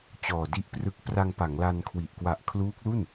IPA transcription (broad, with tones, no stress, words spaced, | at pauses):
t͡ɕɔː˨˩di˦˥ʔprɯ˦˥k̚ pra˧ŋpa˩˦ŋla˧nkʰwi˨˩ʔ kwa˨˩ʔkʰluː˦˥k̚lu˥˩n